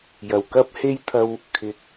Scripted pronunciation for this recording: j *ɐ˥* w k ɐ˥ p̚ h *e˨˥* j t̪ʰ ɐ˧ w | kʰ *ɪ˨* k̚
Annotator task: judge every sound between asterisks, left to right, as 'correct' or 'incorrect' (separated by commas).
incorrect, incorrect, correct